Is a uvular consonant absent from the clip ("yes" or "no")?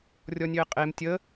no